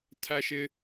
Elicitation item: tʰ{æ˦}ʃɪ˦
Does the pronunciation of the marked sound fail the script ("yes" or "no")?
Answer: no